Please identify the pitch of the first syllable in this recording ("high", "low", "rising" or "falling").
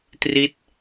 falling